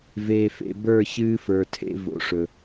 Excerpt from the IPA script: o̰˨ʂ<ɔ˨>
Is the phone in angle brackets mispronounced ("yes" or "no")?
yes